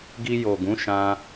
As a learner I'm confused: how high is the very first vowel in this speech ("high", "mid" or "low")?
high